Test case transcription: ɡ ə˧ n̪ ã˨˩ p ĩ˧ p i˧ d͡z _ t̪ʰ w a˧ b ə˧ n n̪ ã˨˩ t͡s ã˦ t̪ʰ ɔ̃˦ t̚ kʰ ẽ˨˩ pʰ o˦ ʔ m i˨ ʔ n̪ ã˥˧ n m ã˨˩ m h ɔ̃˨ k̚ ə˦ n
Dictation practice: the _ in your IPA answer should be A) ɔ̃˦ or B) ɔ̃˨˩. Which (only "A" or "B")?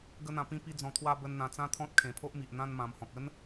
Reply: B